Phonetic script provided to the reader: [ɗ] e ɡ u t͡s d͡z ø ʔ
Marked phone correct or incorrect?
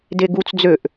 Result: incorrect